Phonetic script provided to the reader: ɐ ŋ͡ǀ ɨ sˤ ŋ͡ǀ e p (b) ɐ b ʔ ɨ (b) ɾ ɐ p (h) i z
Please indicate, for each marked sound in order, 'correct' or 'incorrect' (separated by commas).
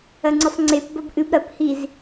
correct, correct, correct